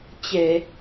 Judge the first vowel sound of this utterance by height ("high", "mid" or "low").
mid